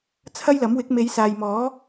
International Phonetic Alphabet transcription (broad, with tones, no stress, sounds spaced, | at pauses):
t͡sʰ ɐ˥ j l ɐ˨˥ m w ɪ˨˥ k̚ m e˨˧ j s aː˨ j m ɔː˨˥